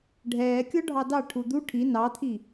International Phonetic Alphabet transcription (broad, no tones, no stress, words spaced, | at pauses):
ɖʱɛːkʲɔ ɖʱɑdɑ ʈʰud̪u ʈʰi nɑt̪ʰi